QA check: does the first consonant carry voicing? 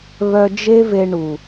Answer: yes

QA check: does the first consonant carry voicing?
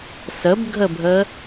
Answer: no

